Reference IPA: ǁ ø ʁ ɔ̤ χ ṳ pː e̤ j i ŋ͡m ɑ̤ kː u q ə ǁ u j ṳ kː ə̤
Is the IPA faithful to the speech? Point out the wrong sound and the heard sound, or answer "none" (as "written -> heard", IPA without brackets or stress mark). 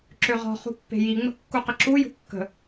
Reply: ɑ̤ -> ə̤